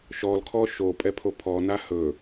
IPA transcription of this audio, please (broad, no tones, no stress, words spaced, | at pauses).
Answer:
ʃɔl kʰɔʃo pʼɛpʰopʰɔ nahɵ